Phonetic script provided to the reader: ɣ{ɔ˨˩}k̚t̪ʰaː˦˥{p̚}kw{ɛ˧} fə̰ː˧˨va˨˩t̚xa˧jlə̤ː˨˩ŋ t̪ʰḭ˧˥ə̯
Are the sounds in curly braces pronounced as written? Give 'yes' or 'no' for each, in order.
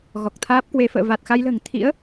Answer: yes, yes, no

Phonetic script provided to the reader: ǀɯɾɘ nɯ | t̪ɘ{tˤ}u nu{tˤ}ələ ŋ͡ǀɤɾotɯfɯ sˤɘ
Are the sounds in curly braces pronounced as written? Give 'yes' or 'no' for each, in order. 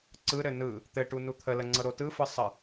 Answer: no, no

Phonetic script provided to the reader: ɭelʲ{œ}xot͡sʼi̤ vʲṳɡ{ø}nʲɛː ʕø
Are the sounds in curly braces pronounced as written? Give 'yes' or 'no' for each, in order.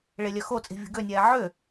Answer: yes, yes

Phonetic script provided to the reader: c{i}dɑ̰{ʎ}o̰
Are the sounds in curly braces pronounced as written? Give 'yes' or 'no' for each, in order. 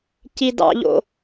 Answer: yes, yes

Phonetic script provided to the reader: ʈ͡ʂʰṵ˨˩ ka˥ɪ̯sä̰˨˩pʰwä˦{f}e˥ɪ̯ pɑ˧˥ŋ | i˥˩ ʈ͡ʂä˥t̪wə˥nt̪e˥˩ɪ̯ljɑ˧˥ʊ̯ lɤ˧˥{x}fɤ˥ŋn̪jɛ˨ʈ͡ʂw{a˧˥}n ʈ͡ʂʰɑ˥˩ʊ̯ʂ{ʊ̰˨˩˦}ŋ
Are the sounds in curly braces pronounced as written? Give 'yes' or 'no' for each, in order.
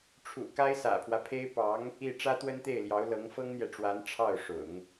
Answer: no, no, yes, yes

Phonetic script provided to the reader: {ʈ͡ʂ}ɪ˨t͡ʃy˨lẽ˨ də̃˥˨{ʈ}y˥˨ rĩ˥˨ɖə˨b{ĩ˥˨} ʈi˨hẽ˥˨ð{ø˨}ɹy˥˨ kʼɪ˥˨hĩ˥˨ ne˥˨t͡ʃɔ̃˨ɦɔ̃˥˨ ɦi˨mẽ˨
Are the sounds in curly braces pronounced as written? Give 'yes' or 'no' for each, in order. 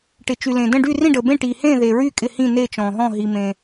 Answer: no, no, no, no

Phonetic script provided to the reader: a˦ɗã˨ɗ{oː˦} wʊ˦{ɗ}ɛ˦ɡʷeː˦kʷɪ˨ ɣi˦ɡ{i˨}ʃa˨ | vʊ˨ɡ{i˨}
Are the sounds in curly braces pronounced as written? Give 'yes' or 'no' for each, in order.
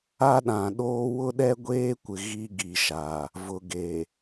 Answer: yes, yes, yes, no

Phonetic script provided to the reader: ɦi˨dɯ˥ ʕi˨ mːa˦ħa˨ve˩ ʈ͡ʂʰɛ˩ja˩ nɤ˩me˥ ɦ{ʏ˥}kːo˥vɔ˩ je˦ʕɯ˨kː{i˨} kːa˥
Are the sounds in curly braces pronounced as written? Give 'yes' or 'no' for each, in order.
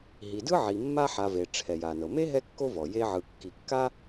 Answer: no, yes

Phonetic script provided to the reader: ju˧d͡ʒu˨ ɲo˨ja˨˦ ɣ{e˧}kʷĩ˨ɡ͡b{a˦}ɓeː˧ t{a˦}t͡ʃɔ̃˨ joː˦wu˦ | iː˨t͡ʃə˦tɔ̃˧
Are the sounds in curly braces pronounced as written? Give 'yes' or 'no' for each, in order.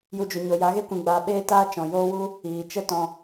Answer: yes, no, no

